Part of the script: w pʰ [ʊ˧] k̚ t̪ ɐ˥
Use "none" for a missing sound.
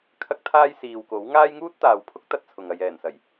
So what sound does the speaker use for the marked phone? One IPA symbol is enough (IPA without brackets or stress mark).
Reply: ʊ˥